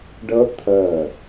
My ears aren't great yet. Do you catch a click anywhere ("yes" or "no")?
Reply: no